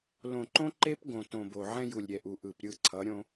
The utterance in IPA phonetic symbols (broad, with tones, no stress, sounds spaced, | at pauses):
l õ˨ ǃ õ˦ ǃ e˦ p ɡ õ˨ t õ˨ b o˨ ʕ ɛ̃˦ j u˨ lʲ ɾʲ ɛ˨ ʔ u˨ ʔ ɯ˨ p ɾʲ ɯ˦˨ ǀʰ ʌ˨˦ ɾʲ õ˦